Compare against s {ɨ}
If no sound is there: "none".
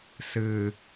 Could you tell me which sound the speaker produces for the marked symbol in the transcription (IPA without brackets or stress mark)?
ɨ